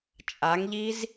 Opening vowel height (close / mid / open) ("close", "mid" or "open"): open